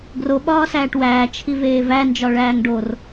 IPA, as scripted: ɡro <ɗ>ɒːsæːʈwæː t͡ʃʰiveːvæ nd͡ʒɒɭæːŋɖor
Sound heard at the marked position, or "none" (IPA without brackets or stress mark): ɓ